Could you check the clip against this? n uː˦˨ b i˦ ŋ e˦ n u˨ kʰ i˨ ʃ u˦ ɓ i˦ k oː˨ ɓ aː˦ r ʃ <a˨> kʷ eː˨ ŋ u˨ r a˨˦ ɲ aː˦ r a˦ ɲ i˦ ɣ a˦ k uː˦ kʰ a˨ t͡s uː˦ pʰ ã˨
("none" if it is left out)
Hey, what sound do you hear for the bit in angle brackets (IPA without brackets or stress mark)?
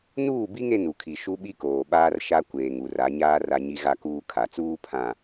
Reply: a˦